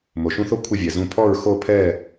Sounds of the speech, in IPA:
mo˩ʃũ˥θo˥ kʷʰɪ˥˨vʲɛ˩zũ˥˨ pʰɔ˥˨ɹxo˥˨pʰɛ˥˨

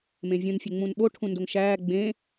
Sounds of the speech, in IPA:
mẽvʲũn fʲeŋ͡mũnɓo ʈʰũndoŋʃæː ɡ͡bẽ

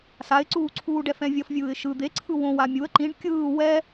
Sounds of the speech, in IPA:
saɪ̯ǀuːǀʰuːɖ ɛfɛ̃vʲʌfvʲɯːɪ̯ ʃɯ d̪eǀʰɯ wõ wamʲuə̯ ǃĩɖ kʲɯː wɛ

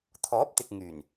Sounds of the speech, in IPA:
t̪ʰɔː˨˥p̚t̪ɪ˨k̚ ŋyː˨˩n

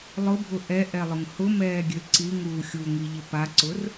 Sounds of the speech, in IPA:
lˠʊbʱʊ ʔɛʔɛlˠʊŋ hʊmɛːɡʲø ǀiŋuː xʲuŋiʎɪ paǀʊr

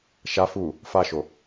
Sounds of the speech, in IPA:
ʃa fu | faʃo

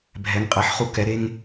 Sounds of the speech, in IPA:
bʱɛ˩˧ŋqʼɛ˩˧ħχu˧˩ kɛ˩˧ɾe˧ŋ

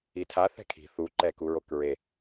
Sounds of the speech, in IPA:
itʰa θɛ̤kʰi̤ θu ǃɛkuɹokɹe

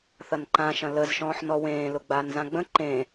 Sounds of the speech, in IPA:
θɐnǃã ʃɐ̃ləzʃɔ̃ːħnɔ wẽːlʊ ɡ͡baːnzãɡ͡bə̃ ǃẽ

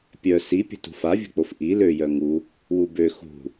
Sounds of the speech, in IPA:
pʲœ sipʲə̤ tṳfavʲə̤k͡pof ʔi løjœ ŋu | wubø xṳ

